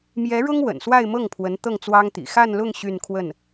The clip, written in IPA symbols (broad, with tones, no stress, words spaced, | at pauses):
mjɛ˧˥ɻʊ˥ŋ wə̰˨˩nswa˥˧ɪ̯mɤ˥˩ŋpʰwə˧˥n t̪ɤ˥˩ŋt͡swɑ˥ŋ t̪ḭ˨˩ xa˥˧nlʊ˥˧ŋ ɕy˥˧nkʰwə˥˩n